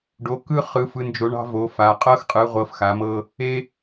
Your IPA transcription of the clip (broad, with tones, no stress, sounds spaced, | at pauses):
ɖ o˨˦ k ɯ˥ χ ɯ˨˦ f ɯ˨˦ n d͡ʒ o˨˦ ɳ ɑ̤˥ v o˨˦ f a˨˦ qʼ ɤ˥ x qʼ ɯ˨˦ ʁʷ ɤ˨˦ f x a˨˦ m ɤ˥ | e˥